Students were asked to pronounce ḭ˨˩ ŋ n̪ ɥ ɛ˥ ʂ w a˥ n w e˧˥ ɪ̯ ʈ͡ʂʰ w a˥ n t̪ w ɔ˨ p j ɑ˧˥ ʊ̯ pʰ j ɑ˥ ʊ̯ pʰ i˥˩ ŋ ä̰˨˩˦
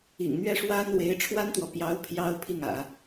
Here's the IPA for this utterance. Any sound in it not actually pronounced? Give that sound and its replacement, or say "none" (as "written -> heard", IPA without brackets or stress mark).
none